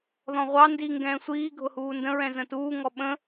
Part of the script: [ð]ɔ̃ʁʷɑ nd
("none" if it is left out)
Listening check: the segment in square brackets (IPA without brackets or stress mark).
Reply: ð